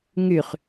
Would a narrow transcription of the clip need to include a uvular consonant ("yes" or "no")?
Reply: yes